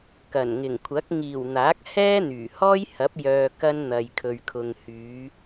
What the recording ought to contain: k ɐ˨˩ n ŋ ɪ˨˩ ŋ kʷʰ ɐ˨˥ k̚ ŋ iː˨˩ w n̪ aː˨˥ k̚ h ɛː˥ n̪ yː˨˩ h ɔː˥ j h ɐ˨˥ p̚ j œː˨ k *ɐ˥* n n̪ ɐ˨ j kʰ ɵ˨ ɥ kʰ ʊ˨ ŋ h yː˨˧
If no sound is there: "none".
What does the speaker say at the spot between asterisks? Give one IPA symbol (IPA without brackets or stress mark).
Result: ɐ˥